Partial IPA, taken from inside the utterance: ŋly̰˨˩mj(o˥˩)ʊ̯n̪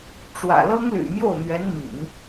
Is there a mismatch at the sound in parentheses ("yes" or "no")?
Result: no